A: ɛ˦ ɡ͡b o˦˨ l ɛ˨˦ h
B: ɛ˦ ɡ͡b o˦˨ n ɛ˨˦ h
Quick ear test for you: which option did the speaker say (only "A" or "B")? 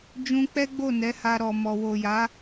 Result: B